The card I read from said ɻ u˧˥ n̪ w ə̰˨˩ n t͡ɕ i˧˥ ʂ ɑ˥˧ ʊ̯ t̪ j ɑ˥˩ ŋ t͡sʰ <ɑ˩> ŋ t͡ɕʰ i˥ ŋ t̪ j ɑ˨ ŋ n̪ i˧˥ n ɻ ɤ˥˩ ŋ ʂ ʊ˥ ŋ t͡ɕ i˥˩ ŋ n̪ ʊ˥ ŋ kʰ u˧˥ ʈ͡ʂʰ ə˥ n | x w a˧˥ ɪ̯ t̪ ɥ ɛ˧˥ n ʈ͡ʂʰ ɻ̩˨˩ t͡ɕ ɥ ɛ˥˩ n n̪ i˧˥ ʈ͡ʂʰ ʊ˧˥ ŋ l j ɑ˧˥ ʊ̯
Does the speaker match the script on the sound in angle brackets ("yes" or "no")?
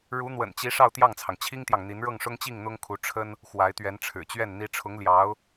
yes